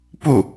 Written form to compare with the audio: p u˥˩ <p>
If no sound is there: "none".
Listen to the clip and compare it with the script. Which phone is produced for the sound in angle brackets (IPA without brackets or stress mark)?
none